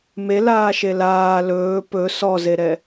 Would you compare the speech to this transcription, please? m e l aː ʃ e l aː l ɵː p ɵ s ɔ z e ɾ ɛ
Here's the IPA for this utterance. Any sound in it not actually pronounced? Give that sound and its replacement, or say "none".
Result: none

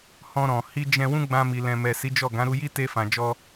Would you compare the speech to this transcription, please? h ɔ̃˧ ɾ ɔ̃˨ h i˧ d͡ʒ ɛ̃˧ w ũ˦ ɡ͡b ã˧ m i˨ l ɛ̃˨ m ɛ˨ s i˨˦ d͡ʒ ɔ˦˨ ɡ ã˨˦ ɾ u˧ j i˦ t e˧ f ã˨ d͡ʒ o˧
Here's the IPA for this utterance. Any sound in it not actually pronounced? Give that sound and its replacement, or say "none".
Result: o˧ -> ɔ˧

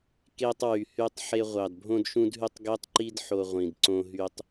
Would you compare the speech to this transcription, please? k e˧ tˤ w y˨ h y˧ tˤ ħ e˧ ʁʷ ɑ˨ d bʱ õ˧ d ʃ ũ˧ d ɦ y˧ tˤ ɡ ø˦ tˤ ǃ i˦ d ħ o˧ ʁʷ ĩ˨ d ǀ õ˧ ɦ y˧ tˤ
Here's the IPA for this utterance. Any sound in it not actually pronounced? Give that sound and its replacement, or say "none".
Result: none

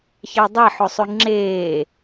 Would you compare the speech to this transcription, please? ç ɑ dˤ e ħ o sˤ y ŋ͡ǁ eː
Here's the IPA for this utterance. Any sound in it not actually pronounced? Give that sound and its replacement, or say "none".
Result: none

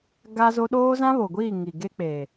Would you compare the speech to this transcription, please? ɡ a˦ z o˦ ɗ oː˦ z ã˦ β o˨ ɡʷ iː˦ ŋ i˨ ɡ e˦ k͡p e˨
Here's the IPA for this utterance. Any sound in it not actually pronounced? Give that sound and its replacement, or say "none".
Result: iː˦ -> iː˦˨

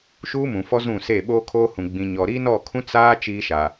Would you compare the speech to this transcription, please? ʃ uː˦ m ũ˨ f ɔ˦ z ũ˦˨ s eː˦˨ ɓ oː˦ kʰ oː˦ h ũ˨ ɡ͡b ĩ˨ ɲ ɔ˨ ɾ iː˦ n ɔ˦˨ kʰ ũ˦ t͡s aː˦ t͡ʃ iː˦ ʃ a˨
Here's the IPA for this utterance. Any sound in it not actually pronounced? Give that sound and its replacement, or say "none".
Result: none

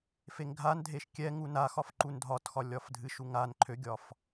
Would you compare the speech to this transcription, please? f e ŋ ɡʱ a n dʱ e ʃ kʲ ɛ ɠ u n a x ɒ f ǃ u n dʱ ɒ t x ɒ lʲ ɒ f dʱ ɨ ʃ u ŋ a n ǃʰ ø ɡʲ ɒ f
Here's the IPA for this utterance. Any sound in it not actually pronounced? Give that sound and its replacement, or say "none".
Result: ɠ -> ŋ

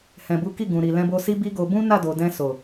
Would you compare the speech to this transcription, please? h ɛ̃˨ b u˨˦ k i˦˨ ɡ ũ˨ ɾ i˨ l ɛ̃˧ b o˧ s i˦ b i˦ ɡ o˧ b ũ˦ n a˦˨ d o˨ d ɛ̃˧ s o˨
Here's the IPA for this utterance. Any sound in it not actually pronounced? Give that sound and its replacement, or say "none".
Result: none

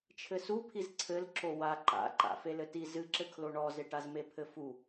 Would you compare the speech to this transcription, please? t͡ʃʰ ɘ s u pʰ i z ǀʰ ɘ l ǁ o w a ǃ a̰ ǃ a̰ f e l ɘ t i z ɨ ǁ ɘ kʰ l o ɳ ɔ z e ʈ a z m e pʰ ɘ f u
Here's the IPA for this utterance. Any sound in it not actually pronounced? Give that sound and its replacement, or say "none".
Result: none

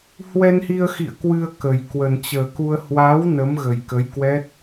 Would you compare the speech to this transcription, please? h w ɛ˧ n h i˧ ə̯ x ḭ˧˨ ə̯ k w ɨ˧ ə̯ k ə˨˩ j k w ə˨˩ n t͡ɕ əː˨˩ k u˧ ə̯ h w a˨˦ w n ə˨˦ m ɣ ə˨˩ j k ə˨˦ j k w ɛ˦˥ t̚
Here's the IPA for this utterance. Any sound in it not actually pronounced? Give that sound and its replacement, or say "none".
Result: none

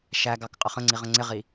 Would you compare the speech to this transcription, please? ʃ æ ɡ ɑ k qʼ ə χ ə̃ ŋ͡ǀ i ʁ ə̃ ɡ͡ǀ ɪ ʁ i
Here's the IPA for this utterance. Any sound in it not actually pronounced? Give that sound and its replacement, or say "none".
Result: ɡ͡ǀ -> ŋ͡ǀ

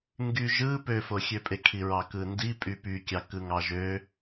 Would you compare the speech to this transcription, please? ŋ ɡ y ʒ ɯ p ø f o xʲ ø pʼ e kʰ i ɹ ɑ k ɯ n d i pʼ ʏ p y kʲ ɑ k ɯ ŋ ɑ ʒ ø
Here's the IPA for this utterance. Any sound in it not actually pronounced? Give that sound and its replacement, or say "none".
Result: ʏ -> y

